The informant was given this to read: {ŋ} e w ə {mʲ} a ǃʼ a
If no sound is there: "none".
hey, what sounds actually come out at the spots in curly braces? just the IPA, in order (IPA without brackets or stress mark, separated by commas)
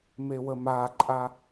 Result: m, m